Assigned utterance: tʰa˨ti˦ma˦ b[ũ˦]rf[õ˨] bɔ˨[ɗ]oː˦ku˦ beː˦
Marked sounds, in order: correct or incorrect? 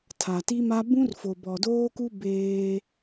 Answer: correct, incorrect: o˨, incorrect: d

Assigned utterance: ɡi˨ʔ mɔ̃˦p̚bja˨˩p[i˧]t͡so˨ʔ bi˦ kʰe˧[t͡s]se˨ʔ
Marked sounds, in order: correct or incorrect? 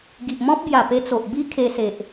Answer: incorrect: e˧, incorrect: none

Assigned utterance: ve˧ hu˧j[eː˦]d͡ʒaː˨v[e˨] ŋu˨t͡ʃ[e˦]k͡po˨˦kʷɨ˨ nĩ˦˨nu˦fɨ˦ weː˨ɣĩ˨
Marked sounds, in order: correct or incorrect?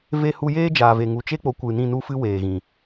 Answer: correct, correct, correct

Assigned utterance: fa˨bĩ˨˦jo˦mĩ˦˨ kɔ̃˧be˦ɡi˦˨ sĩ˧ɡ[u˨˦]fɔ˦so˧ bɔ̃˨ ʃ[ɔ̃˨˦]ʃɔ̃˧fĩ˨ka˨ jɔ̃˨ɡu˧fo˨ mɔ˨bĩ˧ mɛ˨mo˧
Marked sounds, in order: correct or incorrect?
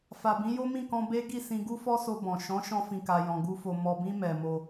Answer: incorrect: u˦, correct

